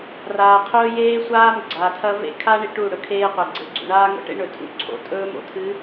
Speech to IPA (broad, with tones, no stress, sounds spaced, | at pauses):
r aː˨ qʰ ɵː˦ j eː˦ sʷ aː˦ m ɡ͡ǀ aː˨ tʰ ɐ˦ v ḛ˦˨ kʰ aː˦ ɳ i˨ ʈ u˦˨ ɽ ɵ˦ kʰ eː˦ qʷ ɐ˨ ɡ͡ǀ e˨ ɡ͡ǀ ṵ˨ ɳ aː˦ ŋ o̰˦ ʈ ḛ˦ ɳ ɵ˨ tʰ ṵ˦˨ ǀʰ o̰˨˦ tʼ ɵː˦ m o̰˨ tʰ ɨ˨˦